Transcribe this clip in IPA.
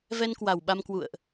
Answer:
v ɛ˧ n k w a˨˩ w ɓ a˧ m k w ṵ˧˨ ə̯ ʔ

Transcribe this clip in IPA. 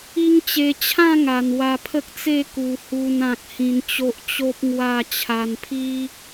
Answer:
i˦ ŋ t͡ɕ e˧ t͡ɕʰ ã˥˧ ŋ a˨˩ n w a˧ pʰ ə˦ k̚ t͡s e˥˧ k u˨˩ h u˧ n ã˨ k̚ h ĩ˧ n t͡ɕ o˦ ʔ t͡ɕ o˦ p̚ ŋ w a˥˧ t͡ɕʰ a˧ n pʰ i˦

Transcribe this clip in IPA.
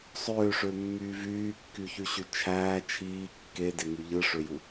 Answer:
sˤ øː ʂ ø mː yː v yː kː y ç y ɕ y t͡ʃʰ æː t͡ʃʰ iː kː e d e ŋ y ʎ ɯ ʂ ø j u

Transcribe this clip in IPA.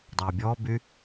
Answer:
dˤ ɑ bʲ ɔ b y

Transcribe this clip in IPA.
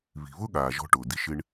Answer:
β i̤˩ β ʊ˥ ɠ aː˩ ʒ ɔ̤˧ ʈ ʊː˩ d i˧ ʃ ɪ˧ ɳ

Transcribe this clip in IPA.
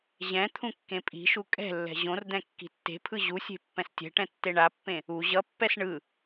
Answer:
ʑ ɛ̃ t̪ʰ ũ kː ẽ pʼ i̤ ʃ u kʼ ɛ̤ lː ɛ̤ ʑ õ r d̪ ɛ̃ kː i̤ tː e̤ pʰ ɯ ʑ u sʲ e̤ pː ɛ̃ s tʲ ɛ̤ ʈ ɛ̃ tː e ɳ a pː ẽ | u ʑ ʌ pː ɛ s ɳ ɯ

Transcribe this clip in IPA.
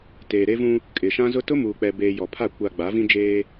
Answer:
t eː˨ ɾ e˦ v ũ˦ | kʼ ɪ˨ ʃ ã˦ z ʊ˦ t ʊ˦ m uː˨ k͡p ɛ˨ b eː˨ j ɔ˨ pʰ a˦˨ kʷ a˨ ɡ͡b a˨˦ v ĩ˦ d͡ʒ eː˦

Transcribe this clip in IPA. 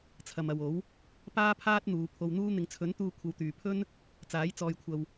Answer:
t͡sʰ ɐ˨ m ɐ˨ w o˨˥ w | p aː˥ pʰ aː˥ t̚ n̪ uː˨˧ pʰ o˧ w n̪ uː˥ n̪ ɪ˨ ŋ t͡sʰ ɵ˨˥ n t̪ uː˧ kʷʰ ɐ˧ w t̪ yː˨ pʰ ɵ˥ n | t͡s aː˨˥ j t͡s ɔː˧ j kʷʰ ɐ˧ w

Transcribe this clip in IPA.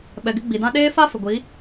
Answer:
ɓ ɛ˨ ɡ ɪ˦ ɡ͡b i˨ d ã˦ ɗ eː˦ f a˦ f ɪ˨ ɡʷ i˨˦

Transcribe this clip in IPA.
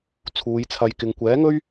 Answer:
t͡sʰ uː˨˧ j t͡sʰ ɐ˧ j k ɪ˧ ŋ kʷ ɛː˨˥ ŋ ɵ˥ ɥ

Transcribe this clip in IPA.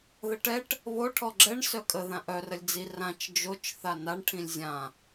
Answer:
ð ə ʈ ɛ ʈ | β o ʈʰ ɔ ɡ͡ǁ ɛ ɳ s œ kʼ ə ð ã ʔ œ r ə lʲ d͡z i r ã t͡ʃ d͡ʒ o t͡ʃ θ a n a ɳ ʈʰ ĩ lʲ zʲ ã

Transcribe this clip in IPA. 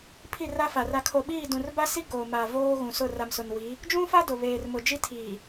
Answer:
pʰ i˦˨ r a˦ f a˨ r a˨ kʰ o˨ ɓ iː˦˨ d ũ˨ r b a˦ s i˦ ɡ oː˨ m a˨ v oː˦ ɣ ũ˨ s ʊ˦˨ r a˨ m s ʊ˨ n w i˨˦ | d͡ʒ ũ˦ f a˦ d ʊ˨ β eː˨ r m ʊ˨ d͡ʒ i˦ tʰ iː˨

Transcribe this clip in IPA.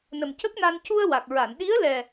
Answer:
n ə˨˩ m c ə˦˥ k̚ n a˧ n c u˧ ə̯ w a˨˩ k̚ ɹ a˨˩˨ n ɗ i˧˥ ə̯ l ɛ˨˩

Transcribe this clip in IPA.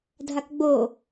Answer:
dʱ a k ɡ͡b o

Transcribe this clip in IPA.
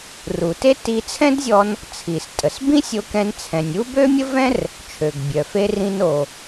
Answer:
r u˩ t e˥ t i˧ t͡sʰ ɛ̃˥ d zʲ ɔ˧ n | t͡sʰ i˩ s tʼ ə˩ s b ĩ˥ sʲ o˧ k ɛ̃˧ n t͡sʰ ɛ̃˩ nʲ u˥ b ø˥ mʲ ə˥ v ɛ̃˥ r | t͡ʃʰ ø˩ ɡ bʲ œ˩ f e˧ r ĩ˧ n o˩

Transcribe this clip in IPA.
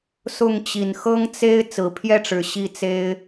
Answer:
s ʊ˥˩ ŋ t͡ɕ i˨˩ n x ɤ˥ ŋ t͡s e˥ ɪ̯ t͡s ɹ̩˨˩ pʰ j ɛ˥˩ ʈ͡ʂ ɻ̩˨˩ ɕ i˥˩ t͡s e˥ ɪ̯

